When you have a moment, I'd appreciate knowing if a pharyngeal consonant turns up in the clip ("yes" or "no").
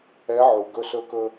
yes